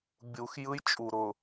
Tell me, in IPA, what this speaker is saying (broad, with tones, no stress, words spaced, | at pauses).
bʲu˨x jɯ˦jt͡ʃʼu˨ɾʊ˨